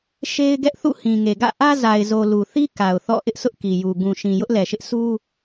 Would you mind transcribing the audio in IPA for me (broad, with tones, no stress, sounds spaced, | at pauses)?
ʃ e˦ ɪ̯ ɡ ɛ˦ ʔ θ ṵ˦˨ h ĩ˨ ŋ e˨ ɡ ä̰˦˨ ʔ ä˦ z a˨ ɪ̯ z o˨ l u˨ θ i˦ k a˨ ʊ̯ θ ɔ̰˦˨ ʔ ɪ˦ ʔ s ʊ˦ ʔ k i˨ j u˨ ɡ ũ˨ ʃ ĩ˨ j ʊ˦ ʔ l ɛ˨ ʃ ɪ˦ ʔ s u˦